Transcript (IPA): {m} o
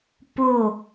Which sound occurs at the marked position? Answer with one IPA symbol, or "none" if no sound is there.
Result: p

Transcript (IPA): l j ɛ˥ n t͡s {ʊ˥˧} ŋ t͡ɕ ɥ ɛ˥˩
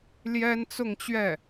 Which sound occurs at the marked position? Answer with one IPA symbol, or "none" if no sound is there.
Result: ʊ˥˧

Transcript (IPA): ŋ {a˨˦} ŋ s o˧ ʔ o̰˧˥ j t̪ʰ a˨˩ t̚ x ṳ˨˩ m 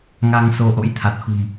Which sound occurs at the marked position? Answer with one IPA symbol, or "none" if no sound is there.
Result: a˧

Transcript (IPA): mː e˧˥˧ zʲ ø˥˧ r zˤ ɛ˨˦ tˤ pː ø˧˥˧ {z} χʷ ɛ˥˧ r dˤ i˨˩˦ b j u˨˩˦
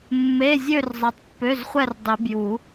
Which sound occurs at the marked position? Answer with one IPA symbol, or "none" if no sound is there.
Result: z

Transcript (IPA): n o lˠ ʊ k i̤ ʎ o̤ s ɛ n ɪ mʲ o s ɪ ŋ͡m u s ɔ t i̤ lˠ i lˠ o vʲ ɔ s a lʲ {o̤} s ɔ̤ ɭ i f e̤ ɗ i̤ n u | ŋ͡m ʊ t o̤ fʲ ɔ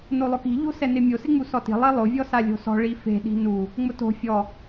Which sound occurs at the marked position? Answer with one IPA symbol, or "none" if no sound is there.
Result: o̤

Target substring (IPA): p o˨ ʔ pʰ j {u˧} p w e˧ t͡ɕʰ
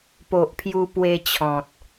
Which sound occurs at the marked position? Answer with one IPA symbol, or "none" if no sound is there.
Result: u˧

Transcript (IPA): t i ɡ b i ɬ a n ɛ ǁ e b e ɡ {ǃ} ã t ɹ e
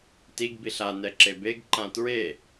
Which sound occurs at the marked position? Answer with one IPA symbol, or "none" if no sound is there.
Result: ǃ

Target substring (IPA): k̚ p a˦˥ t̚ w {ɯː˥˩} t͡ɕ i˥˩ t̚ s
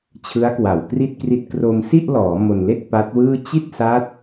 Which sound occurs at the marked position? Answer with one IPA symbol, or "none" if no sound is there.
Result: ɯː˥˩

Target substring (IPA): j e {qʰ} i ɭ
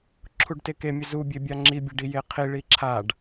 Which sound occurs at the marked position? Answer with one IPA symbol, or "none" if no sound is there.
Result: qʰ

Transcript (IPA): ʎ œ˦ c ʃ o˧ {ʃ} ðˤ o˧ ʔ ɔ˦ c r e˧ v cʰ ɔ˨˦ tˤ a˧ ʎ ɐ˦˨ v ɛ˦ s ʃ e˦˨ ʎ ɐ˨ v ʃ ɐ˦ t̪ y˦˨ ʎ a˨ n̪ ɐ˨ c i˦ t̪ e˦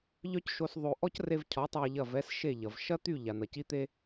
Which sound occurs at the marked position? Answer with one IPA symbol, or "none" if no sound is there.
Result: s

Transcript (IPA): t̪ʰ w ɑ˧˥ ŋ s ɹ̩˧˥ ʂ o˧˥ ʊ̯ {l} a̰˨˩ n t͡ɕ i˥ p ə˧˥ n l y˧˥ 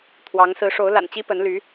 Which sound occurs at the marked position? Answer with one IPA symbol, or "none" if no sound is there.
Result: l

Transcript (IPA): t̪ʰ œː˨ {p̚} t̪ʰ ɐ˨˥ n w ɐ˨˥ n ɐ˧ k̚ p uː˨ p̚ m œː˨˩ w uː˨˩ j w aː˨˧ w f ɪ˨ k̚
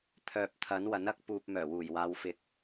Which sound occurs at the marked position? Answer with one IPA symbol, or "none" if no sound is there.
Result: p̚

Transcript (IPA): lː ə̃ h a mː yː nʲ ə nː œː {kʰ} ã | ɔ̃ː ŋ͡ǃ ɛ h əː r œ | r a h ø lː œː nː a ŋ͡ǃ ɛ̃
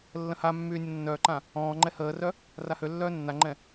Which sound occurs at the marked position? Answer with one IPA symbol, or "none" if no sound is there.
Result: ǃ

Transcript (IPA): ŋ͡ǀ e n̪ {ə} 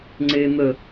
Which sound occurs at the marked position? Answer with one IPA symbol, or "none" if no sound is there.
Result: ə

